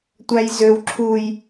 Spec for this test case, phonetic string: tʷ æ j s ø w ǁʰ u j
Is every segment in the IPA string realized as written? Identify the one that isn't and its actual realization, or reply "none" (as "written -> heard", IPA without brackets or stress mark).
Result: s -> z